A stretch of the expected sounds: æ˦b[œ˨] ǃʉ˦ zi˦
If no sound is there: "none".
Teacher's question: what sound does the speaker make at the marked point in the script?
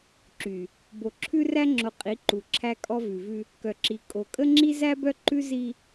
œ˦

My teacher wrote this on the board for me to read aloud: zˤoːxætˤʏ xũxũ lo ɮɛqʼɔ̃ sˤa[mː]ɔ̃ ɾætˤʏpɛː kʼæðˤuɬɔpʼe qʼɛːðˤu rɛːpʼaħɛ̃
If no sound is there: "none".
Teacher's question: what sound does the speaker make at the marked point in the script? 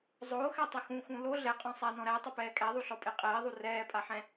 n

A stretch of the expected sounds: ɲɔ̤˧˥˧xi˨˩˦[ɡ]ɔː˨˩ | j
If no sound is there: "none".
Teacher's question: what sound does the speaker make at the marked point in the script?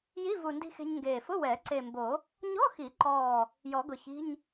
ǃ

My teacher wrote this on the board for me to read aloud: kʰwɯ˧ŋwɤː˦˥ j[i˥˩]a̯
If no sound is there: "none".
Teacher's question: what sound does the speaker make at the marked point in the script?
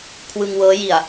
i˨˩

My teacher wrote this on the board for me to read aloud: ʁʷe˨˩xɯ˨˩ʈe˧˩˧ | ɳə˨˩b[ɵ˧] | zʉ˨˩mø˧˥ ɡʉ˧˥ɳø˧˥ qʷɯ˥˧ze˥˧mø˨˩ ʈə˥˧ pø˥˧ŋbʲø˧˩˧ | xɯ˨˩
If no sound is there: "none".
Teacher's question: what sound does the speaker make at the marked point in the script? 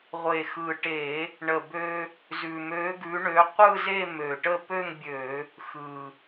ø˧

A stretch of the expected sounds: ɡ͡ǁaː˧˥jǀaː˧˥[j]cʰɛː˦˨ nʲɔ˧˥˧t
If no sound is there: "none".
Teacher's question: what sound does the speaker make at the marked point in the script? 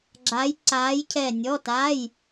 j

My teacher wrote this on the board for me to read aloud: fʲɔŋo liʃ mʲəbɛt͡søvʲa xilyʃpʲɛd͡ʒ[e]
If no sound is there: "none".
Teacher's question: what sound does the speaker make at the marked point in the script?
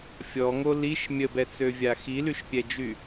y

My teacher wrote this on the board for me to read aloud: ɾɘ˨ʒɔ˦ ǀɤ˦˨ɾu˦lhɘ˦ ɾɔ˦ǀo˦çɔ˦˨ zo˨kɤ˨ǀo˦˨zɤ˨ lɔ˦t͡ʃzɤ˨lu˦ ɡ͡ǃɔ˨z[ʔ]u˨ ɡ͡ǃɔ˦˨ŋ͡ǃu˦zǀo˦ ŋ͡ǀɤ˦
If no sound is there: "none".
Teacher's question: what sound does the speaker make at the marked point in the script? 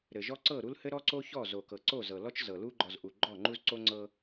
ʔ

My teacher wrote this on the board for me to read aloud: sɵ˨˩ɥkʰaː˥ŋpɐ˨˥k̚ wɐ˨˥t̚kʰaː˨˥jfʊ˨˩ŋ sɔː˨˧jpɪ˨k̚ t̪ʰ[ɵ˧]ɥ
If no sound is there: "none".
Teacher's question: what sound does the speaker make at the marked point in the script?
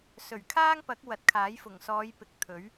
ɵ˨˥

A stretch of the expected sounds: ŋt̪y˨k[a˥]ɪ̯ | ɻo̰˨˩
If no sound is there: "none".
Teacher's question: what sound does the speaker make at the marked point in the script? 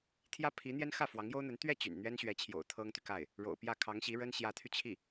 a˥˩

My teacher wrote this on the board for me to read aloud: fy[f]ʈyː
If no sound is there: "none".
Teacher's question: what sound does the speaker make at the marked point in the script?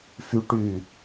none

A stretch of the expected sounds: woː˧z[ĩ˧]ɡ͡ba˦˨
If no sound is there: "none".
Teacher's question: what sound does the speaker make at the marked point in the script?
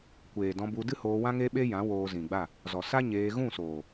ĩ˨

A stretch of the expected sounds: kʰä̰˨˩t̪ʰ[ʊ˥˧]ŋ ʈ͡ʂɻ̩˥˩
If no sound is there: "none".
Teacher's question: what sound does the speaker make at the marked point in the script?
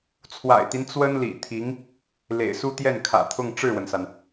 ʊ˥˧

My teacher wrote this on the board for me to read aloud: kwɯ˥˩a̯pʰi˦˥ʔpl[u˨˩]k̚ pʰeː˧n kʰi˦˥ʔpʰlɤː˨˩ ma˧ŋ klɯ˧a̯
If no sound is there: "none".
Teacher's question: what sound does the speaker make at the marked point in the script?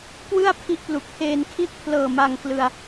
u˨˩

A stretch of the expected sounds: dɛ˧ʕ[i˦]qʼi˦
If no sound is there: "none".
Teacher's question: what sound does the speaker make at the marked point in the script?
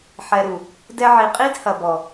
i˨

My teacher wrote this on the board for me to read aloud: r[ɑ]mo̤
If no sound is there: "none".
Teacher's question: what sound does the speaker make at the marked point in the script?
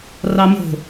ɑ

